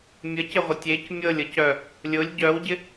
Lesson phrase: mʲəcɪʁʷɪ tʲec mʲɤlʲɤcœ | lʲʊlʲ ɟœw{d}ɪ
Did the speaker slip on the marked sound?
yes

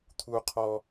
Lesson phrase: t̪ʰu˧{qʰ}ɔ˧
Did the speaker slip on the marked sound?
no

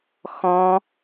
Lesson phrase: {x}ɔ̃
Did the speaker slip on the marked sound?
no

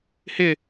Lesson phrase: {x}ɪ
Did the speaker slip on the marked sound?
yes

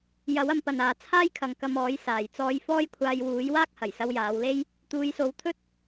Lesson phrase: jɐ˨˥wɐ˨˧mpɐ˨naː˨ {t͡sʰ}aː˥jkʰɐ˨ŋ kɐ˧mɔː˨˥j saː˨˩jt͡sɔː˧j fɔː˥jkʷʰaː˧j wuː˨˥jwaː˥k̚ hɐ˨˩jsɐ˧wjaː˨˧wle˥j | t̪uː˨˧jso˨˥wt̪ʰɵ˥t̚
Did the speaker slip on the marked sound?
no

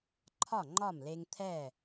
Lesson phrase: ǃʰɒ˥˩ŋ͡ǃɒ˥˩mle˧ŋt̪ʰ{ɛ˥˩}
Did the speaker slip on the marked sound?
no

